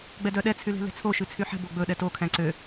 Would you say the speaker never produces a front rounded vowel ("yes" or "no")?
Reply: no